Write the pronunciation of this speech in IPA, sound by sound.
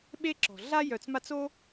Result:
ɓ e˥ ǁ ɔ̤˩ ɮ a˥ j œ˨ t͡s m a˦ t͡s o˥

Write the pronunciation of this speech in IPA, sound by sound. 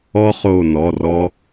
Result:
ɔ˥ χ o˦˨ n ɔ˩˧˩ r ɔ˥

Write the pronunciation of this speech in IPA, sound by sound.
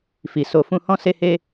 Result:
f i˨ s o˨ f ũ˧ h ɔ̃˦ s e˦ h e˦

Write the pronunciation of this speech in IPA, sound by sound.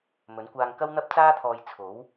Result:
m ɵ˨˥ n kʷ aː˧ ŋ k ɐ˥ w n̪ ɐ˥ p̚ t͡s aː˥ t̪ʰ ɔː˧ j t͡sʰ o˨˥ w

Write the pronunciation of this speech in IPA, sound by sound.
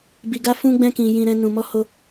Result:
b i˧ ɡ a˦ f ũ˦ ɡ͡b ɛ̃˦ k ĩ˧ j ĩ˦ ɾ ɛ̃˦ n ũ˧ m ɔ˦ h o˦

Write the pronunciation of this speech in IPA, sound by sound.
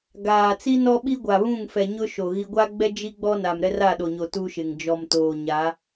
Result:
ɡ aː˨ t͡s i˦ n ɔ˦ ɓ i˦ ɡʷ a˨ β ũ˦˨ ŋ f ɛ˨ ɲ ʊ˦ ʃ o˨ ɣ i˦ ɡʷ a˦ ɡ͡b ɛ˦ d͡ʒ i˦ ɡ͡b ɔ˦ n a˨ m ɾ ɛ˦ r a˦˨ ɗ o˨ ɲ o˨ t u˦ ʃ ɪ˨ ŋ d͡ʒ ɔ˨ m t oː˨ ɲ a˨˦

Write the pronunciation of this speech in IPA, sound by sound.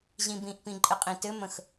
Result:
ʑ ĩ b ĩ ʔ p ĩ ǃʼ ɘ qʼ ĩ t ɘ m ə̃ x

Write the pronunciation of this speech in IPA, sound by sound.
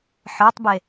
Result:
ħ ə˞ tˤ b e

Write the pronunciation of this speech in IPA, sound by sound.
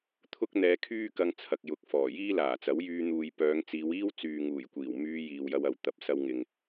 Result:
t̪ʰ ʊ˥ k̚ n̪ ɛː˧ kʰ yː˥ k ɐ˧ ŋ t͡sʰ ɐ˨ k̚ j ʊ˨ k̚ f ɔː˨˩ j iː˥ l aː˨˩ t͡s ɐ˨˥ w j yː˧ n̪ uː˨ j p œː˨˧ ŋ t͡s iː˨˧ w iː˥ w t͡s yː˨ ŋ uː˨˩ j kʷ iː˨˩ w m yː˧ j iː˨ w j ɐ˧ w ɐ˨ w t̪ ɐ˨˥ p̚ s ɐ˧ w ŋ ɪ˨ ŋ

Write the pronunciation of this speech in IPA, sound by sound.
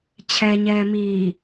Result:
t͡ɕʰ ɛ ɲ ɛː m iː

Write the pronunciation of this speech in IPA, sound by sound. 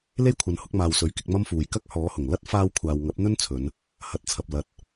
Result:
l e˥ j kʷʰ ɐ˨ n h ʊ˨˥ k̚ m aː˨ w s ɵ˨˥ ɥ k ɪ˧ k̚ m ɐ˥ m f uː˨ j k ɐ˥ k̚ h ɔː˨˥ h ʊ˨˩ ŋ l ɐ˥ t̚ f aː˧ w kʷʰ aː˨ w ŋ ɐ˨˥ p̚ n̪ ɵ˥ n t͡sʰ ɵ˨˧ n | h ɐ˨˥ t̚ t͡sʰ ɐ˨ p̚ l ɐ˧ t̚

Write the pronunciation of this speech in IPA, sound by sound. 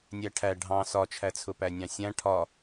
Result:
nʲ æ ʈʰ æ ɖʱ ɑ̃ s ɒ t͡ʃʰ æ t͡sʰ ʊ p æ nʲ ɑ̃ sʲ æ̃ ʈʰ ɒ

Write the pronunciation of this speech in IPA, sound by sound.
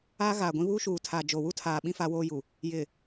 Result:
aː˦ ɣ aː˨ ɡʷ ĩ˦ β uː˦ ʃ uː˨ tʰ aː˨ d͡ʒ o˨ w u˦ tʰ aː˨ ɓ ĩ˦ f aː˦ w oː˦ j u˨ | j ɪ˨

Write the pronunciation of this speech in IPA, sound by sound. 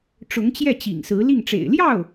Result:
ʈ͡ʂ ʊ˧˥ ŋ t͡ɕ j ɛ˥˩ t͡ɕ ḭ˨˩ ŋ s ɹ̩˧˥ l i˥˩ ŋ ʈ͡ʂ ḛ˨˩ ɪ̯ l j ɑ˥˩ ʊ̯

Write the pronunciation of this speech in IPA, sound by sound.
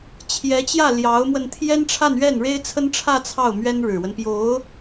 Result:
t͡ɕʰ j ɛ˧˥ t͡ɕ j ä˥˩ l j ɑ˧˥ ʊ̯ m w ə˧ n t̪ʰ j ɛ˥ n ʈ͡ʂʰ a˥˧ n ɥ ɛ˥˩ n ɻ e˥ ɪ̯ t͡sʰ ə˥ n ʈ͡ʂʰ ä˥˧ t͡sʰ ɑ˥˩ ʊ̯ m ɥ ɛ˥ n ɻ ɻ̩˨˩ w ə˦ n p j o˧˥ ʊ̯

